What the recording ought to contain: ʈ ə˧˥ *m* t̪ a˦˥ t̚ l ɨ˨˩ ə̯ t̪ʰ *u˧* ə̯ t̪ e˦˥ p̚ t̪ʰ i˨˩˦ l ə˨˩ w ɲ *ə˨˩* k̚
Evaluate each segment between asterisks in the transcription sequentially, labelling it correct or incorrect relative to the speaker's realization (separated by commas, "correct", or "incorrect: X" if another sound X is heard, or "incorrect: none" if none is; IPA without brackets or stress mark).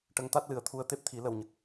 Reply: incorrect: ŋ, correct, correct